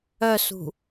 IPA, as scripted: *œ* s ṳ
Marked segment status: correct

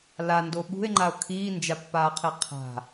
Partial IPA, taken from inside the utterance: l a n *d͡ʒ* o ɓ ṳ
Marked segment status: incorrect: d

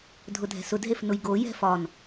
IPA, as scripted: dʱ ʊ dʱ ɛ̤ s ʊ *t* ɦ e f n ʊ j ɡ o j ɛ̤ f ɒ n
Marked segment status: incorrect: d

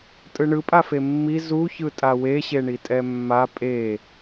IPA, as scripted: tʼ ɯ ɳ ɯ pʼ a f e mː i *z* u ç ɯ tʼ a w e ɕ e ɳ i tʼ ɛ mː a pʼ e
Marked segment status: correct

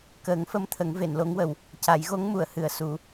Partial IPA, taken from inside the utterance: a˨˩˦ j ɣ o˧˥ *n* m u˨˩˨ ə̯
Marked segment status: incorrect: ŋ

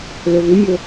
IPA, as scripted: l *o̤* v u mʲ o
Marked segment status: incorrect: o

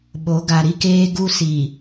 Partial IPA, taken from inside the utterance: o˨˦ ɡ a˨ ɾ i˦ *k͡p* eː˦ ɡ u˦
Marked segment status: incorrect: k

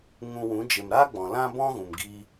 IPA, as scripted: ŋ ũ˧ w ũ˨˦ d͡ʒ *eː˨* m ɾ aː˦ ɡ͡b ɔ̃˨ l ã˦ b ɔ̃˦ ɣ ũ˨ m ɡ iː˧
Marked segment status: incorrect: e˨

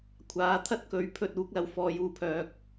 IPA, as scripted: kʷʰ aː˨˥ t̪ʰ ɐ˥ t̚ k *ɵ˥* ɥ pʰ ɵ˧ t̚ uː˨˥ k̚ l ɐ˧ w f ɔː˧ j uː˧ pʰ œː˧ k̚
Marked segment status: incorrect: ɵ˨˥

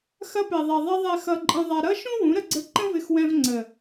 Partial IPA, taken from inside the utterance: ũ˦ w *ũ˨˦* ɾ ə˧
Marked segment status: correct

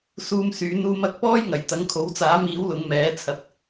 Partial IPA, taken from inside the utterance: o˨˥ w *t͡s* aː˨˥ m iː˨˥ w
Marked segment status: correct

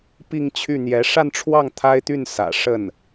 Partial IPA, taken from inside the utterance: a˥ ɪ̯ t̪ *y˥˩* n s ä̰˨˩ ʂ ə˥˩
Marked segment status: correct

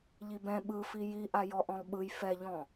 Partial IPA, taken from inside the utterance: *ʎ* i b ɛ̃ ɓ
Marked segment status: correct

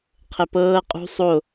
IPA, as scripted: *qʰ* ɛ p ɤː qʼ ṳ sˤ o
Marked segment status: correct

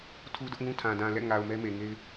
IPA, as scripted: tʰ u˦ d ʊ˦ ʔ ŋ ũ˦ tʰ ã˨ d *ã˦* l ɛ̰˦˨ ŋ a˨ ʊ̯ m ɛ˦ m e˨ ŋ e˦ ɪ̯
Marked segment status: incorrect: ã˨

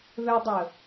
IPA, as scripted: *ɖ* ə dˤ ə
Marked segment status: incorrect: ð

